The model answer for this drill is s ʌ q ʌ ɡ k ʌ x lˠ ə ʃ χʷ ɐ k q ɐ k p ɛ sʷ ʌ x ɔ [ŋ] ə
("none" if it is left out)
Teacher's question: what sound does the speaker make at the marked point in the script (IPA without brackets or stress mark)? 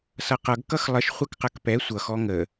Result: ŋ